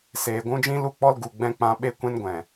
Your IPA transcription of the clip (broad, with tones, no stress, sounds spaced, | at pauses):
s eː˨ ɡʷ ũ˦ d͡ʒ ĩ˦ l u˦˨ k͡p ɔ˦ l ɡ u˨ ɡ͡b ɛ̃˦ k͡p ã˧ ɓ e˦ kʷ ɛ̃˦ n ɡʷ ɛ̃˨